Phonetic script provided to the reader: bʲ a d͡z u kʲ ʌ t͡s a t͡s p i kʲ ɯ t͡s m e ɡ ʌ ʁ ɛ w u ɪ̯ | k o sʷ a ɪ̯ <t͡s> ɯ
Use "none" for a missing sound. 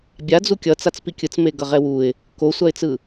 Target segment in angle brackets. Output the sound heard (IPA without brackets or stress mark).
t͡s